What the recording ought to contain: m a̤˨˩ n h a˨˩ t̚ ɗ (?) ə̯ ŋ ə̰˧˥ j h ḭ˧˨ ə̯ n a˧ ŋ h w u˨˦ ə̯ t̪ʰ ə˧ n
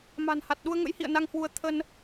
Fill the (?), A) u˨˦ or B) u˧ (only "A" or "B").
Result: B